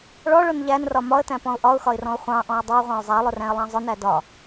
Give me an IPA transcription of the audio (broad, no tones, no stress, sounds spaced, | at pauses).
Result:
ɭ ɔ ɭ ʊ n ʎ æ n r ɒ m ɒ ə̯ t æ̃ p ɔ̃ ʊ̯ ʔ ɒ ʊ̯ x ɒ ɪ̯ r ɔ̃ ʊ̯ χʷ ɑ̃ ʔ ɔ̃ ə̯ dˤ ʊ ə̯ ʁʷ ɑ̃ ʊ̯ zˤ æ lˠ ʊ r æ̃ ə̯ lˠ ɑ̃ zˤ ʊ n æ d ɒ